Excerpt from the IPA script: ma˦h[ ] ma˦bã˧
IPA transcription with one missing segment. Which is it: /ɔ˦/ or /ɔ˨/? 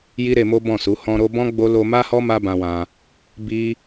ɔ˦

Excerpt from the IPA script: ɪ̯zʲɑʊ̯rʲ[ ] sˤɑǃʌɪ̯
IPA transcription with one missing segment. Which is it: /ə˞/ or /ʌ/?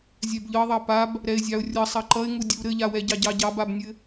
ʌ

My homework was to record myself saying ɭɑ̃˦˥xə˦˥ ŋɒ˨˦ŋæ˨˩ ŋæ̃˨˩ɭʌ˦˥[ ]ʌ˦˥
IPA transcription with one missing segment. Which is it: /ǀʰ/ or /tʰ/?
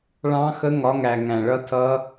tʰ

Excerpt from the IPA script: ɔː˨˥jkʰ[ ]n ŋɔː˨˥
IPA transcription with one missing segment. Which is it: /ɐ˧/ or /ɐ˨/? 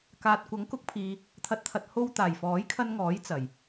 ɐ˧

